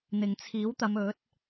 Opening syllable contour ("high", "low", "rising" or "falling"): low